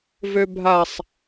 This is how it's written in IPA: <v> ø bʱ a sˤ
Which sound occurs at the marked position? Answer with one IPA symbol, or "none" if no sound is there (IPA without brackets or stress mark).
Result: v